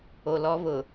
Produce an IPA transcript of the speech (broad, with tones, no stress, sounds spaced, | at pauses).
o˨ l ɔ˦ β ʊ˨